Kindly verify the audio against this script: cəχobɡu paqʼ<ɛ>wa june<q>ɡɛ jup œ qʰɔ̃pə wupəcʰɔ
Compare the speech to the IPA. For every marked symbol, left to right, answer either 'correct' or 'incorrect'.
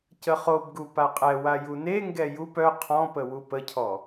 correct, incorrect

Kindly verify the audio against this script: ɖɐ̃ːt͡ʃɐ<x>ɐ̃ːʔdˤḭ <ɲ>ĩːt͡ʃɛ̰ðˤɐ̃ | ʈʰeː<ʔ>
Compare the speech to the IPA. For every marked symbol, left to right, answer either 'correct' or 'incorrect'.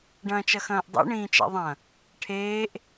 correct, incorrect, correct

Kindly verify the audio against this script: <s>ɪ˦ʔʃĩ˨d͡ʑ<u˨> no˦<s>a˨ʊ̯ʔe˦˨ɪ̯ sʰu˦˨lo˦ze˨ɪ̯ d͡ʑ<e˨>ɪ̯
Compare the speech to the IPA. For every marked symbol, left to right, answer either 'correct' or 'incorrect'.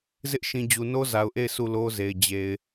incorrect, correct, incorrect, correct

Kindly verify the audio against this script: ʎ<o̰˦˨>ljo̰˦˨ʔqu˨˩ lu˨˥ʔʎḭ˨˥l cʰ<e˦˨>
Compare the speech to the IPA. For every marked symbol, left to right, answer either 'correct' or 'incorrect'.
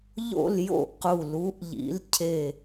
correct, correct

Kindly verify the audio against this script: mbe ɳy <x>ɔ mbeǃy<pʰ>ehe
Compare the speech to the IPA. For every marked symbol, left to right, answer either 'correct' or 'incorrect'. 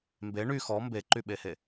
correct, incorrect

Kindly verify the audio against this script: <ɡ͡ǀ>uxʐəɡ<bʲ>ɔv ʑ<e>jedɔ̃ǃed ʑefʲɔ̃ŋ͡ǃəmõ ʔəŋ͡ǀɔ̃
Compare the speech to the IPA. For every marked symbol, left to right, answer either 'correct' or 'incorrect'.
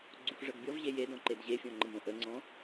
correct, correct, correct

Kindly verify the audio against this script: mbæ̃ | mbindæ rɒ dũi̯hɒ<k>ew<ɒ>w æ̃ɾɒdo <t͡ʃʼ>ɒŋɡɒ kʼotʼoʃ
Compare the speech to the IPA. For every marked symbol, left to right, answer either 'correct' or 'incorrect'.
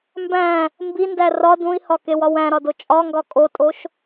correct, correct, correct

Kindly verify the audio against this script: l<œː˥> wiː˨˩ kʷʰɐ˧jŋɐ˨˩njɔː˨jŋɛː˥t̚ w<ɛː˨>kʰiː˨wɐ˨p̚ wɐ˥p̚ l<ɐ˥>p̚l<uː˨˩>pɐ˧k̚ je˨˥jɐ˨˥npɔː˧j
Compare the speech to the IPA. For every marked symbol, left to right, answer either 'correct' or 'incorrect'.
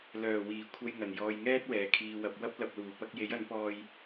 incorrect, incorrect, incorrect, correct

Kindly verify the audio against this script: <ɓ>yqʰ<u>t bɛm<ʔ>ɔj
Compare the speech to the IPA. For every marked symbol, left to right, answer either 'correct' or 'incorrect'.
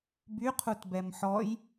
incorrect, correct, incorrect

